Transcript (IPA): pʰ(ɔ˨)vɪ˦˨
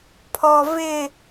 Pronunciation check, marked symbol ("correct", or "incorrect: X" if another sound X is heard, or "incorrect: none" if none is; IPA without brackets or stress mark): correct